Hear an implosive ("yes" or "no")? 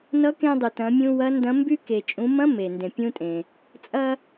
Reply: no